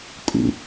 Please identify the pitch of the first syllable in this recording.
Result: low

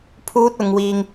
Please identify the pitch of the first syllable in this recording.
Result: high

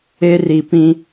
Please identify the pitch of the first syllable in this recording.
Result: high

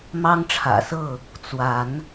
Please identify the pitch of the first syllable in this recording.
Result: high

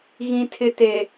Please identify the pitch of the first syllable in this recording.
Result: low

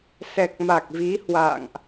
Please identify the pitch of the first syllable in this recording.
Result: low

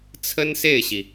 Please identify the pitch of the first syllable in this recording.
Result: high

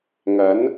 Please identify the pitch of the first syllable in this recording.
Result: rising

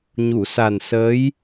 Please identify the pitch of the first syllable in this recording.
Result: low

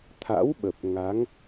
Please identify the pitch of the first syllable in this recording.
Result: rising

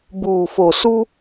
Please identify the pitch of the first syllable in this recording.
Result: low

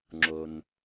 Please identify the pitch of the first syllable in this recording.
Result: low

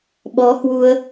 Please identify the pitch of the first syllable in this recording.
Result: rising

